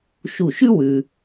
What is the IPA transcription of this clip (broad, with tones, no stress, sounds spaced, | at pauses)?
ʃ u˧˩ ʃ ʉ˥ w ʉ˧